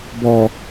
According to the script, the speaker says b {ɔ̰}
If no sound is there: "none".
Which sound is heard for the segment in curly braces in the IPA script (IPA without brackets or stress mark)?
ɔ